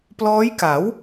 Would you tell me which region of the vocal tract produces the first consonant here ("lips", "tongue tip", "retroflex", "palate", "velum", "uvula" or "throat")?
lips